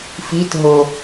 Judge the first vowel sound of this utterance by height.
high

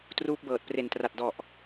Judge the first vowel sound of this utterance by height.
high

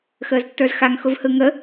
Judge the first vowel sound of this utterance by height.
mid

